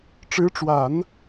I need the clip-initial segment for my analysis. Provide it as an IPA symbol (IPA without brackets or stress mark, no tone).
ʈ͡ʂ